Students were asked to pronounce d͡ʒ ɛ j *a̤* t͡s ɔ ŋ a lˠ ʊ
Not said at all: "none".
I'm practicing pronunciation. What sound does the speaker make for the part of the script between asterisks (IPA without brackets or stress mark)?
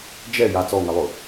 a